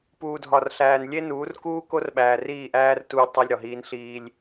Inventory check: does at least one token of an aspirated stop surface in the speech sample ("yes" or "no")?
no